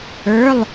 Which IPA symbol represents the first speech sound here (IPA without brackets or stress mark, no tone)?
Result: ə˞